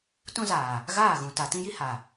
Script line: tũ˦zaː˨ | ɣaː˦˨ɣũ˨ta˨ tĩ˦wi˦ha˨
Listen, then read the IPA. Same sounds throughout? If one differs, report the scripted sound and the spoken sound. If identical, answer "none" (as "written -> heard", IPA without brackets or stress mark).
w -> j